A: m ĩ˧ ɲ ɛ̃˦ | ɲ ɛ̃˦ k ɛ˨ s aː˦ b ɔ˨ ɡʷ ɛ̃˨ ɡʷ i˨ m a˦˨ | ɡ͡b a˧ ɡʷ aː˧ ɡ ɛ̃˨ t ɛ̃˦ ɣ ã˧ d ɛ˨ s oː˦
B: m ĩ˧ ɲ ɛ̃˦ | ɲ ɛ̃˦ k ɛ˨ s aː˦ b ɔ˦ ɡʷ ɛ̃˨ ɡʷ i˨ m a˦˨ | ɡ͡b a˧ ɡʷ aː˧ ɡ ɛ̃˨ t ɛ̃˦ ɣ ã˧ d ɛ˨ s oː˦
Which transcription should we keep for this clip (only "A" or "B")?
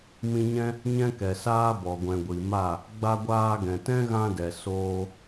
A